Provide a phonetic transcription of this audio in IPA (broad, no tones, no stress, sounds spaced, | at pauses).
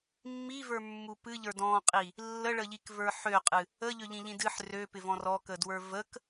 mː i v ə˞ mː u p ɨ ʎ ə˞ d ɔ̃ qʼ i | lː ə ɭ ə ʎ i k v ə˞ ħ ø qʼ ɨ | ə ʎ ø ʎ ĩ ʎ ĩ d ɨ ħ r ø p ɪ v ɔ̃ r ɔ k ə d w ə˞ v ə k